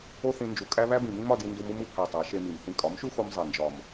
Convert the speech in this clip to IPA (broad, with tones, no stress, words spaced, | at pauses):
o˦θĩ˧ nd͡ʒu˨ kʼæ˦ βæ˦bĩ˨mĩ˦m ɒ˧di˧ndu˧m u˧mu˨pʰæ˨ tˤæ˨˦ ʃe˧mi˨m θĩ˧ kʼɒ˨˦mʃu˦xo˧m zˤe˨nd͡ʒɒ˨m